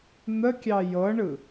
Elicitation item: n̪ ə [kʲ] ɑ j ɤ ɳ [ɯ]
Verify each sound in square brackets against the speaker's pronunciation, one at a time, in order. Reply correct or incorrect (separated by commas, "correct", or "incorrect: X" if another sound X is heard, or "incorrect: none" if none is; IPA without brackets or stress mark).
correct, correct